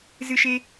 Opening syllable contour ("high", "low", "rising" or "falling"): high